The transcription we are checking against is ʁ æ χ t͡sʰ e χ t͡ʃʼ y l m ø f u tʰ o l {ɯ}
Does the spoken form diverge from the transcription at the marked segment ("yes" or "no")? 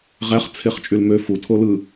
no